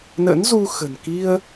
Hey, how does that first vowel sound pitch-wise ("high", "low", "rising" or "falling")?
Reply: rising